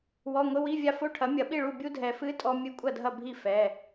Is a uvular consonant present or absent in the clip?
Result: absent